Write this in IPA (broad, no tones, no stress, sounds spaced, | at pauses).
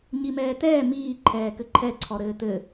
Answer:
ɲ i m ɛː t ɛː m iː ǃʰ ɛː k ɘ ǃʰ ɛ ǀʰ ɔ ɾ ɘː t ɘ